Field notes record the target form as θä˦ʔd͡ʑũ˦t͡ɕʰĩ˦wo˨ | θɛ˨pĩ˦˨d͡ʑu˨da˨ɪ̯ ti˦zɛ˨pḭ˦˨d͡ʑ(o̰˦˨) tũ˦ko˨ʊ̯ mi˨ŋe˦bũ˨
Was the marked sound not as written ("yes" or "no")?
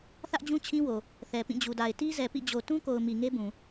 yes